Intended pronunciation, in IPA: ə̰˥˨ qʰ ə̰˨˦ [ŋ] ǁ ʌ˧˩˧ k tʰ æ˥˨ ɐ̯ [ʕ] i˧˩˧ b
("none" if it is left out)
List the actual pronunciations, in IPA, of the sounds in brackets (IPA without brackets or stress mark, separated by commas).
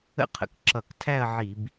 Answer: k, ʕ